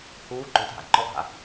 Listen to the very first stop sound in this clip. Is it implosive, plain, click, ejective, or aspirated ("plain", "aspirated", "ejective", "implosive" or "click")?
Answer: click